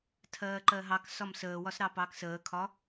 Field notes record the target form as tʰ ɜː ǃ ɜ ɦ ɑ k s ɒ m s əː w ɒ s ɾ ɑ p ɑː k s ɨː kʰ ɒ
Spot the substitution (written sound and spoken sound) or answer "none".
ɨː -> əː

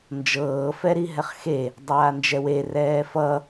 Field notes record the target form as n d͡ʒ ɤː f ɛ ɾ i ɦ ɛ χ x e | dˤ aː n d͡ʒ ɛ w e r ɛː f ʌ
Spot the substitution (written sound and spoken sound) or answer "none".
none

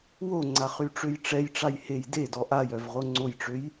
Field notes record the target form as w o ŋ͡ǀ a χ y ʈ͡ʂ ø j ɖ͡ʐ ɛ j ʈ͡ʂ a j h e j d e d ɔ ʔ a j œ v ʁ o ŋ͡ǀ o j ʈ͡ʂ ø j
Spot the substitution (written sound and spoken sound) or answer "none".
ɖ͡ʐ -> ʈ͡ʂ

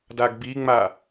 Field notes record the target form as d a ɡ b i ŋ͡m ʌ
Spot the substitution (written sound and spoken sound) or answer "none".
ʌ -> a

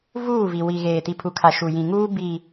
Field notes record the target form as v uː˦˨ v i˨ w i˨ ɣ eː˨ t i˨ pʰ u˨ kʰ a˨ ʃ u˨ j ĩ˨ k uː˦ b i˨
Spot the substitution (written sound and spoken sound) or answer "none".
k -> ŋ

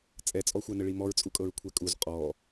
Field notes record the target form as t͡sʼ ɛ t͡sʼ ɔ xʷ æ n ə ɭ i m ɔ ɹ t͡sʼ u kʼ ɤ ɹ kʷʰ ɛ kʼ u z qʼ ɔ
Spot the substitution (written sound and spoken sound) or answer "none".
none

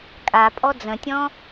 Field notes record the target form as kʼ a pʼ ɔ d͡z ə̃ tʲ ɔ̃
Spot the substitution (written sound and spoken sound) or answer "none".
none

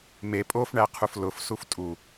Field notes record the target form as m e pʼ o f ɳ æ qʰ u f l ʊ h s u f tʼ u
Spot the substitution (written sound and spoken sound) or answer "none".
h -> f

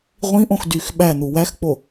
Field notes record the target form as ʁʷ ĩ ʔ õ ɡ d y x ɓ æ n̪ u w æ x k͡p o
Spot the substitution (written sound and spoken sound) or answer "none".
ɡ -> x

